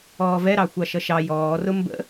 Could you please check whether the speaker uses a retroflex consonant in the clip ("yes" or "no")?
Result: no